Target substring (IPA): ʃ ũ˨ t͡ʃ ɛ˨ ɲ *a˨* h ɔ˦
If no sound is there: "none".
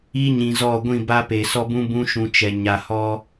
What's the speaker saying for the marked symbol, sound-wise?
a˨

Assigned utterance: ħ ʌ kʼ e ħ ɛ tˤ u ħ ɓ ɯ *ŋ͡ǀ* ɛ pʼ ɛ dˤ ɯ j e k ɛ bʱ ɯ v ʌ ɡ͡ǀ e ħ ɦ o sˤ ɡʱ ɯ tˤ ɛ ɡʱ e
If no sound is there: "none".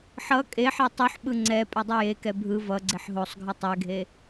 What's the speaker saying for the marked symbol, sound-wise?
ŋ͡ǀ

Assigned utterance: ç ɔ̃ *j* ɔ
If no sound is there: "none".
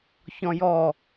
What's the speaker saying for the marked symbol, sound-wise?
j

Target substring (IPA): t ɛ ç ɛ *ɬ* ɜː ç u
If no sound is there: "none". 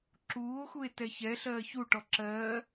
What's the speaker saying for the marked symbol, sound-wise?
ɬ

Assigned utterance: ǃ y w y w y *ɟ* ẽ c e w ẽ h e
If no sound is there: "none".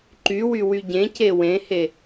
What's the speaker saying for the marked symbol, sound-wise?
ɟ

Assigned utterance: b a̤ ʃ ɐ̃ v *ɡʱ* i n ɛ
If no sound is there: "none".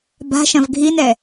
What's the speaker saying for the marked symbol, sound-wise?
ɡʱ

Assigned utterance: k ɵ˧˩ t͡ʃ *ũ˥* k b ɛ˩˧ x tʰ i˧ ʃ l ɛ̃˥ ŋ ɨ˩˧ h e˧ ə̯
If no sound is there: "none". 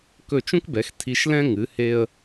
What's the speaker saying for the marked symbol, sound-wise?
ũ˥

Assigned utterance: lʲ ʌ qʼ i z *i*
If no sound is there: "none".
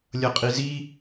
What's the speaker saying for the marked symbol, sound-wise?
i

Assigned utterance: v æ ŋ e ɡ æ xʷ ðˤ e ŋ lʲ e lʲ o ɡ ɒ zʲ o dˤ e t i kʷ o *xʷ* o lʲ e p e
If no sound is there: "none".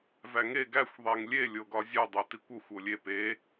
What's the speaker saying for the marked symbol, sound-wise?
xʷ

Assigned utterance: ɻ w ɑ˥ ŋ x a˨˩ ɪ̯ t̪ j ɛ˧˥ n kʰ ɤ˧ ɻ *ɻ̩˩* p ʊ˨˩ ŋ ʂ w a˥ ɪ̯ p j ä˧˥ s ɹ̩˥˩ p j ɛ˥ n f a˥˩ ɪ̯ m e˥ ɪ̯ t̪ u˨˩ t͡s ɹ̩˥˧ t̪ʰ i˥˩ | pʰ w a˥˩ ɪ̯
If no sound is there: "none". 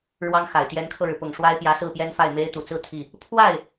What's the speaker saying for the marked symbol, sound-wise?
ɻ̩˩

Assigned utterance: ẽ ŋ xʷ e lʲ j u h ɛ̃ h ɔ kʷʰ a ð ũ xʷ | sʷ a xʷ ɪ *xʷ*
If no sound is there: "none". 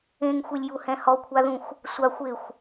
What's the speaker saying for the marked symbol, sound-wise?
xʷ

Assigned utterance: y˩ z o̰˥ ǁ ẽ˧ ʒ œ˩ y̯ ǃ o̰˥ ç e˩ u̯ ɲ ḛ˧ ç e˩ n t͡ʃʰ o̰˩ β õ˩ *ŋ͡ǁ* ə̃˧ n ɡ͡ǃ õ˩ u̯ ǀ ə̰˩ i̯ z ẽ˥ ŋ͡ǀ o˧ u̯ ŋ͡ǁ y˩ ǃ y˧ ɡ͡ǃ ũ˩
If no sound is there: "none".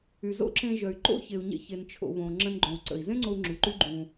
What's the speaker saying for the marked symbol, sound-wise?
ŋ͡ǁ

